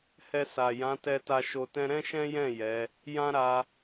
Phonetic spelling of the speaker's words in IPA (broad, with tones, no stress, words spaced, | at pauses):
hɛ˧sa˨ jã˨˦tɛ˧ta˧ ʃo˧tɛ̃˦ ɾɛ̃˦ʃɛ̃˦jɛ̃˦˨ jɛ˨˦ | jã˦ɾa˧